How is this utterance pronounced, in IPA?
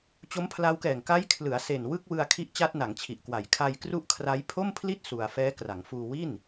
t͡ɕ o˦˥ m pʰ l a˦˥ w k ɛː˨˩ ŋ k a˦˥ j kʰ l ɯ˩˦ a̯ s e˨˩ n w ɯ˥˩ k̚ w ɯ˧ a̯ kʰ i˦˥ ʔ t͡ɕ a˦˥ t̚ n a˩˦ ŋ t͡ɕʰ i˨˩ ʔ k w a˨˩ j kʰ a˧ j k r u˦˥ ʔ kʰ r a˦˥ j pʰ o˥˩ m pʰ l i˥˩ t̚ s u˧ a̯ f ɛː˦˥ k r a˩˦ ŋ f uː˧ w i˥˩ n

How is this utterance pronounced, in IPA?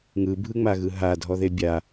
ŋ ɯ bʱ ɯ ŋ͡m a ɣ ɯ ɦ a dʱ ɔ ð e bʲ a

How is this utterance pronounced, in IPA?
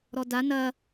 ɾ ɔ d a n ɐ

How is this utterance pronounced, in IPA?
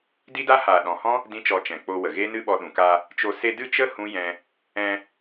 d i˦ d a˦ h aː˨ ɗ ɔ̃˨ h ɔ̃˦ | d ĩ˦ t͡ʃ ɔ˧ t͡ʃ ɛ̃˨ k͡p o˧ w ə˨ ɣ e˦ n ɨ˦ ɓ ɔ˧ ɗ ũ˨ k a˧ | t͡ʃ o˧ s e˧ d ɨ˦˨ t͡ʃ ə˦ h ũ˦ j ɛ̃˧ | ɛ̃˧

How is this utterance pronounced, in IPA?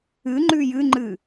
ɨ ŋ͡ǃ ʉ j ɨ ŋ͡ǃ ɨ

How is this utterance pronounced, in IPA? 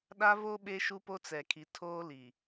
ɗ a˦ v o˦ ɓ e˦ ʃ u˦ p o˦ t͡s ɛ˨ kʰ i˨ tʰ oː˦ l i˨

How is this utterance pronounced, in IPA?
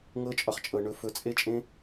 ŋ ɤ˧ t͡ʃʼ ɒ˨ χ t͡ʃʼ ɤ˨ ɳ ɵ˧ f ɵ˧ t͡sʼ e˦ t͡ʃʼ ẽ˦

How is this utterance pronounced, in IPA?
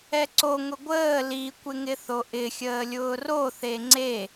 ɛ ǀ o ŋ ʊ ɡʷ əː l i kʷ ɪ ŋ ɪ θ o ʔ ɪ xʲ əː lʲ ʊː r o θ e ŋ͡ǀ e

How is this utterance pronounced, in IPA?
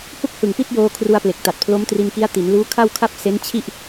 h u˥˩ k̚ h ɯ˨˩ ŋ p i˥˩ t̚ j oː˧ kʰ r u˧ a̯ p l e˨˩ k̚ t a˨˩ t̚ pʰ l o˦˥ m t r i˧ n k i˦˥ a̯ t i˩˦ n l uː˦˥ kʰ a˥˩ w kʰ a˥˩ p̚ s e˦˥ n t͡ɕʰ i˥˩ ʔ

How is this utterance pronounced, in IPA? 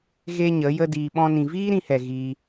ɣ e˦ ɲ ə˨˦ j ə˦ d iː˧ ɓ ɔ̃˦ n ĩ˧ v iː˦ ɾ ĩ˧ h ɛ˨ ɣ iː˧

